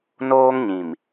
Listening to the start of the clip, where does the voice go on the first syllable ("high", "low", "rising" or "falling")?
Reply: high